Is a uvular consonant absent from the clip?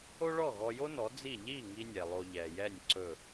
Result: yes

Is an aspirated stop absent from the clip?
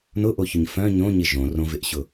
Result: yes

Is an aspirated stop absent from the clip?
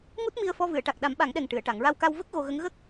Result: yes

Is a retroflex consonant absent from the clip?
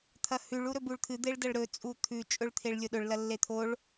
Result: no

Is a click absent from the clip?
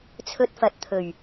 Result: yes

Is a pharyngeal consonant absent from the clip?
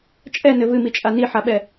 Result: no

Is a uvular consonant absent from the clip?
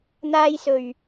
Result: yes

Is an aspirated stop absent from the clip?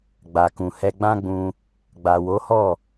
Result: yes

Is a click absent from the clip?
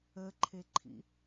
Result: no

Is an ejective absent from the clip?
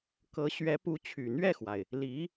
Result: yes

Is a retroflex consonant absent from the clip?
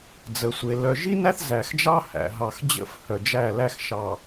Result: yes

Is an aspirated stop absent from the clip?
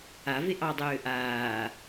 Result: yes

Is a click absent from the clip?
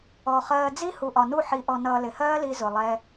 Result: yes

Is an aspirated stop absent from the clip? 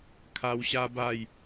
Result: no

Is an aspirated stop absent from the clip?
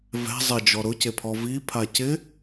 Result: no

